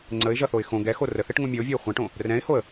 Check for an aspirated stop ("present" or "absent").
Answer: absent